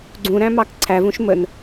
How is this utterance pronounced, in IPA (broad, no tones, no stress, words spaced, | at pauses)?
ɡ͡ǀũɾæ̃mɑk ǀʰævũʃ mən